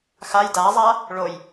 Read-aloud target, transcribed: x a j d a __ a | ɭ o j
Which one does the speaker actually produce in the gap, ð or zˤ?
zˤ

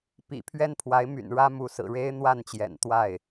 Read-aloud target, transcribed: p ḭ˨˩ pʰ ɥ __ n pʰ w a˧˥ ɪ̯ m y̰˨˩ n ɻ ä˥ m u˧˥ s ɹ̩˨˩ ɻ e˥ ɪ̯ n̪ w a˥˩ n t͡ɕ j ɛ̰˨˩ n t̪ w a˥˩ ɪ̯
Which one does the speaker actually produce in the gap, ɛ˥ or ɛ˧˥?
ɛ˥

